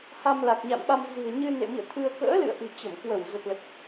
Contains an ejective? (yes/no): no